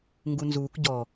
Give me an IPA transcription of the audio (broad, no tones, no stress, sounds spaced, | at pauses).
ŋ ɡ u n z uː k ɟ ɔ